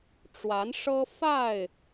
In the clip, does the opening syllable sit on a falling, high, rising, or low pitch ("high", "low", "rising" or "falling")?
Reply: rising